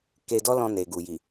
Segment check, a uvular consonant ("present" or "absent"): absent